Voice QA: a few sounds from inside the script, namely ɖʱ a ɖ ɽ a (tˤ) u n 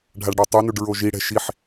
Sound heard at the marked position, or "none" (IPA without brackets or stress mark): tˤ